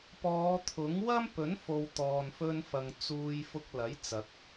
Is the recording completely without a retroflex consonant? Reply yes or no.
yes